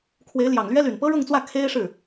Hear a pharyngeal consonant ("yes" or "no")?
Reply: no